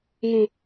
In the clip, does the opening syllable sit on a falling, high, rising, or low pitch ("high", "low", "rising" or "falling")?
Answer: high